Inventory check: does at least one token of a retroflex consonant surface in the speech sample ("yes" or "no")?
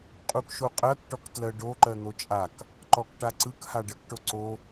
yes